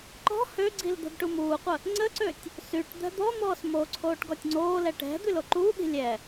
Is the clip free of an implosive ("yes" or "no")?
no